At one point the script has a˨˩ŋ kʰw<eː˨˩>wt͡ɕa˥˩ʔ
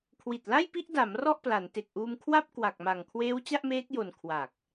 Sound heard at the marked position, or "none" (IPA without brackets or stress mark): eː˦˥